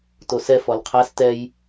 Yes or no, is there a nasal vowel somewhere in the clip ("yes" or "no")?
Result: no